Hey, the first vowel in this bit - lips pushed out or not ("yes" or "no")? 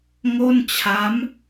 yes